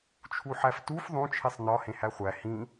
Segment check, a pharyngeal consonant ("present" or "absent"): present